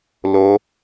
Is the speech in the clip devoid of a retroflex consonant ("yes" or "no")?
yes